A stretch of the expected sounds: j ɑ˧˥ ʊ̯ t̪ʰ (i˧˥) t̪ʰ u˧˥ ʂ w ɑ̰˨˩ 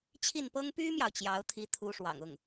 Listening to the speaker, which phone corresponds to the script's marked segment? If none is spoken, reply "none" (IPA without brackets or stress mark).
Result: i˧˥